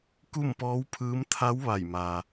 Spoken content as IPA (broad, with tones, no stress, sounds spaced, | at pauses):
k u˥˨ m p ɔː˧˥ w pʰ ɯː˧˥ m t̪ʰ a˧˥ w ʋ a˧˩ j m aː˩